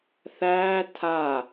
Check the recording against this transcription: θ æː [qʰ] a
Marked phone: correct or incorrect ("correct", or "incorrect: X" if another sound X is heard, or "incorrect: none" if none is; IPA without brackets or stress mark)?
incorrect: tʰ